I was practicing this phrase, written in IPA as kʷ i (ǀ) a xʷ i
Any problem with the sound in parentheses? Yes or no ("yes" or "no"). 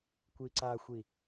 no